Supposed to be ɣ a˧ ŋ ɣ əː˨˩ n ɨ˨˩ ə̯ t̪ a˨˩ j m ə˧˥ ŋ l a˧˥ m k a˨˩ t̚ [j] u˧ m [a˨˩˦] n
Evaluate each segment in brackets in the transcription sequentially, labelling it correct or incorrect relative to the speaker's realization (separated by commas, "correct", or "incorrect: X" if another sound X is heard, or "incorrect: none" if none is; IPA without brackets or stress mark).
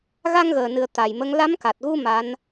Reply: incorrect: ɣ, incorrect: a˧˥